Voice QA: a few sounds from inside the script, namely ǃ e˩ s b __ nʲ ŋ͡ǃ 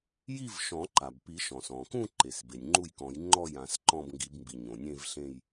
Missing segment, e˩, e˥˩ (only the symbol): e˩